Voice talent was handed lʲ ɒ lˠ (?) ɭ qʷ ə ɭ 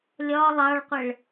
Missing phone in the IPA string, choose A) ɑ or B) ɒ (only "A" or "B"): A